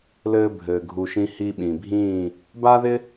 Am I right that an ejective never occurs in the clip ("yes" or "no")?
yes